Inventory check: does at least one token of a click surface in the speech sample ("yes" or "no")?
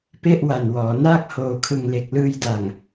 no